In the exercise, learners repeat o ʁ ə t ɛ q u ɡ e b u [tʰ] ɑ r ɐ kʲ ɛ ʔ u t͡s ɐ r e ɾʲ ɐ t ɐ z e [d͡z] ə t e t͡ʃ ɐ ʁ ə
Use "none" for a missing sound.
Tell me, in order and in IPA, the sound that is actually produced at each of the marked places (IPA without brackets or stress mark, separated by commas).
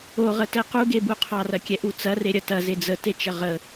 qʰ, d͡z